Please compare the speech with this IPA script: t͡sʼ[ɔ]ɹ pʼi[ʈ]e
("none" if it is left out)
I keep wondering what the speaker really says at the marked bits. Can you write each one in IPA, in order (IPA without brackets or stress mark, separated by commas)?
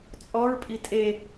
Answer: ɔ, tʼ